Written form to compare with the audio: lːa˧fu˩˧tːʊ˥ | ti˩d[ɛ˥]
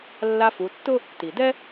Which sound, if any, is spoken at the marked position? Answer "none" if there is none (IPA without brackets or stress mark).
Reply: ɛ˥